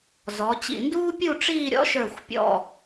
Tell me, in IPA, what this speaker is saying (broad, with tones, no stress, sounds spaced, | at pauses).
z ɔ˩˧ t͡ɕ ḭ˧˩ n d uː˥ pʲ u˥˧ ʈ͡ʂ iː˥˧ ɾʲ ɔ̰˥ ʃ ə˞˧˩ xʷ pʲ ɔ̰˧˩